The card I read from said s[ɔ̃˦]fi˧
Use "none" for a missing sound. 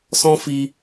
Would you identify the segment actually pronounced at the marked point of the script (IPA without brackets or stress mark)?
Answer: ɔ̃˦